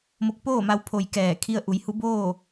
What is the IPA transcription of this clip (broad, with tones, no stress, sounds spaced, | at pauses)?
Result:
m o˧ k̚ p oː˥˨ m a˧ w pʰ o˩ j k ɛː˧˩ kʰ i˧ ə̯ ʔ u˩˧ j h u˧˥ b oː˥˨